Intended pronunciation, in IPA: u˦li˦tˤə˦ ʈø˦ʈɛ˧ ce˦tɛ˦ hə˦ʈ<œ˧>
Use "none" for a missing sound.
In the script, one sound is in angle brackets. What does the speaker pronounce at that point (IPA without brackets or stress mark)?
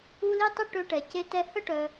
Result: œ˧